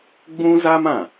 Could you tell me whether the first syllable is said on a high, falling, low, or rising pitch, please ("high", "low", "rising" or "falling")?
high